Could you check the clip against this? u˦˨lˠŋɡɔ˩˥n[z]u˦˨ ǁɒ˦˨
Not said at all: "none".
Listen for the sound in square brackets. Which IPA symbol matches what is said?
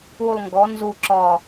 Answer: z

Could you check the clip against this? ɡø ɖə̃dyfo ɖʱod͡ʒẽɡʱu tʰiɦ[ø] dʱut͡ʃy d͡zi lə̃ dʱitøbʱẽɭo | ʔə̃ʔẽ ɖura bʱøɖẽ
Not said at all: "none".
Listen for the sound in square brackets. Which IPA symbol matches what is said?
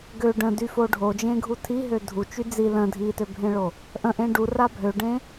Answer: ø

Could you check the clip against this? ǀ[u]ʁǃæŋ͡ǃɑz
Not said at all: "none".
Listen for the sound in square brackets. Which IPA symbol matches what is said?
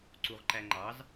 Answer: u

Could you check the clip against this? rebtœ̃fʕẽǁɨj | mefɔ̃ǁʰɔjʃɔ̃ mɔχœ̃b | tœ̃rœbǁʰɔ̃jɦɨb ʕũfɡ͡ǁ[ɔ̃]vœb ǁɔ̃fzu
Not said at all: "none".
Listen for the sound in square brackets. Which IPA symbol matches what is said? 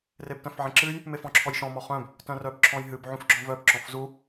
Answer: ɔ̃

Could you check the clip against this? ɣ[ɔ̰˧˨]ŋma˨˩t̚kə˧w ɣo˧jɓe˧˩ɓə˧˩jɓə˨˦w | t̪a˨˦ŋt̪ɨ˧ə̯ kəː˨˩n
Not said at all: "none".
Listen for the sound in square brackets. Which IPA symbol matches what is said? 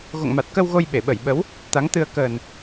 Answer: o̰˧˨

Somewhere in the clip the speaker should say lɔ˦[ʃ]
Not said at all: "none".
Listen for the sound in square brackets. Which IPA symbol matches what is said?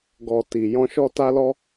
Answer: none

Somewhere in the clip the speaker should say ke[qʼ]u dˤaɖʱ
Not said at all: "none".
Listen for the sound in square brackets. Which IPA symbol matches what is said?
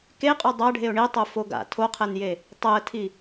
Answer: qʼ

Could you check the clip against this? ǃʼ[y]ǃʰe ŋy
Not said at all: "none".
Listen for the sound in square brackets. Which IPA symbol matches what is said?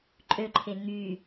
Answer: ø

